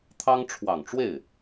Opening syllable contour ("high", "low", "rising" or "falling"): high